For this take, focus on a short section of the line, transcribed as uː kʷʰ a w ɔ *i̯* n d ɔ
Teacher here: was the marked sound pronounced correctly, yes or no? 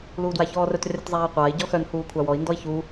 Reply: yes